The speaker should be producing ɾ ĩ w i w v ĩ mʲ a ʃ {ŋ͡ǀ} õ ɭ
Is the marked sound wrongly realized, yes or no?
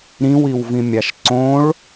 yes